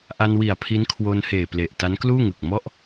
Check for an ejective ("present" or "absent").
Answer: absent